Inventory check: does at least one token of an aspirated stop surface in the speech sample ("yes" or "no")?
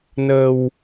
no